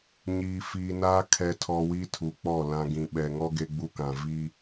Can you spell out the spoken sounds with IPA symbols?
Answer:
ɲiː˨fiː˨naː˦ kʰɛ˨tʰɔ˨ wi˦tʰu˨k͡pɔ˦˨ lã˨ ɡĩ˨ɓɛ˨ŋɔ˦ ɡe˦ɡ͡bu˦kã˨ vi˦

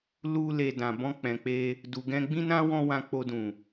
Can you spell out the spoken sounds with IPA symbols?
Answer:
lu˧le˨ dã˨bɔ̃˧k͡pɛ̃˨k͡pe˧ | du˨ɡɛ̃˧ɡ͡bĩ˦nã˦ wɔ̃˦wã˧k͡po˧dũ˨

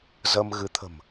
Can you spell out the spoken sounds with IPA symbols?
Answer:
zə˧m ɣɨ˨˦ t̪ʰə̤˨˩m

